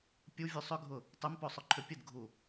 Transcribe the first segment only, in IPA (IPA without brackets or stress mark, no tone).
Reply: pʲ